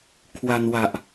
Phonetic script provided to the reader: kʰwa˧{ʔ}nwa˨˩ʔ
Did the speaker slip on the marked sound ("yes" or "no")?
yes